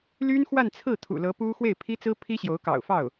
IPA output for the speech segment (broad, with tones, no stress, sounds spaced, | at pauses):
l y˥ n x w a˥˧ n t͡sʰ ɹ̩˥˩ t̪ʰ ṵ˨˩ l ɤ˧˥ p u˥ x w e˥˩ ɪ̯ pʰ i˥ t͡s ɹ̩˥ pʰ i˥ ɕ j o˧˥ ʊ̯ k ɑ̰˨˩ ʊ̯ f ɑ˥˩ ʊ̯